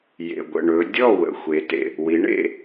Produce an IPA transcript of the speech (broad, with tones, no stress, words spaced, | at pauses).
jḛ˩ɡʷə̰˩ ɳɵ˩˧dʲɔ˥˩ wə̰˩xʷe˩˧tḛ˩ | wi˩˧ɳḛ˥˩